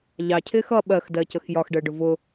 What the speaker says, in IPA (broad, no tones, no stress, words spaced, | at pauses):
ʎɑcʰɪːx ʌ ɓɜxdɜcəx jɒxɖəːɖʊ vʊ